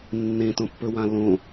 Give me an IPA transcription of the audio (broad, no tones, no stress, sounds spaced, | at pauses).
nː ẽ t õ pː ɵ w ã l õ